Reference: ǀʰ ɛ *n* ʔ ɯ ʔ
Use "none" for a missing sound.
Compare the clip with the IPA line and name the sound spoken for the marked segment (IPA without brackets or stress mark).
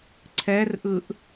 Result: r